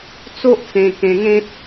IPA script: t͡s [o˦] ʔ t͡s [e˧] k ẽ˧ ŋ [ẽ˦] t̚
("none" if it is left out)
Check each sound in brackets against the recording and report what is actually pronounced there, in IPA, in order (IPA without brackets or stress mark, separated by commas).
o˦, ẽ˧, ẽ˦